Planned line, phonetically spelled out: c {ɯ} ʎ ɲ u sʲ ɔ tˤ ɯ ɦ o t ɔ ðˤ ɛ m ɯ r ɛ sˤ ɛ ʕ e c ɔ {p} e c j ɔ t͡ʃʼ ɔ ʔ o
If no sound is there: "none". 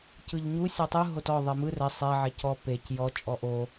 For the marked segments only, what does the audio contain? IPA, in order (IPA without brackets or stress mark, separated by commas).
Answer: ɯ, p